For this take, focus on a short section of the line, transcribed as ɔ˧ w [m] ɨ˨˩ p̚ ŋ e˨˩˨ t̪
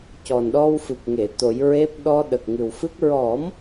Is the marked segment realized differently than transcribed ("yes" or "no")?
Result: yes